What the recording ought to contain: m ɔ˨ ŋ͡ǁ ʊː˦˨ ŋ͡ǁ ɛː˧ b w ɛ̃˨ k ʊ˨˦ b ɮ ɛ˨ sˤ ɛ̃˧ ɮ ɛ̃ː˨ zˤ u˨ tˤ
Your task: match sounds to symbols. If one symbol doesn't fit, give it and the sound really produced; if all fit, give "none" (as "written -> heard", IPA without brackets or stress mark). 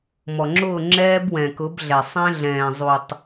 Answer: none